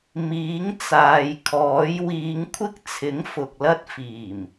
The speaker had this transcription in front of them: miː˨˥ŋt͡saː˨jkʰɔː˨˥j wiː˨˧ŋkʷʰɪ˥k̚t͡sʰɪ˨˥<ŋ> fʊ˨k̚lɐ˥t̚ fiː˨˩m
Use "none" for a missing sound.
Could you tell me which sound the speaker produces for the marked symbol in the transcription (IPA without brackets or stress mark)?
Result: ŋ